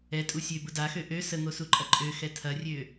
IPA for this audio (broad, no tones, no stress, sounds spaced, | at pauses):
ɛ tʼ u sʲ ø b ʊ d a x ø ʔ ø s ə ŋ o s u ǃʼ ɐ ǃʼ ø x ɛ tʰ ɐ rʲ ø